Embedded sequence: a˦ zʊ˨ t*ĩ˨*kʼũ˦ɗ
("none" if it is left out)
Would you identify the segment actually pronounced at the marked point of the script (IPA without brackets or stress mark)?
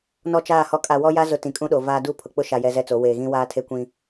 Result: ĩ˨